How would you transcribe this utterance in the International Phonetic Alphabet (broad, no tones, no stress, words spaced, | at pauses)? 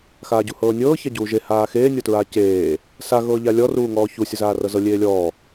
xaːɟuhɤːnʲɤː çaɟuːʒe haːxeː nʲɔtɹaːceː | sa ɣɤːʎalʲɔ ruːŋɔːçu sʲɤzaːrɤzɤ lʲeːlʲɔː